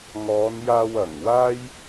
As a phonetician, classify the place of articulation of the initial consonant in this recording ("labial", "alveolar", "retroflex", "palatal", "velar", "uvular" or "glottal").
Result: velar